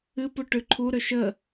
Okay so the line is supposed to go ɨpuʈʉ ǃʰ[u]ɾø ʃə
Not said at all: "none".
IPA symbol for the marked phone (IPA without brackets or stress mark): u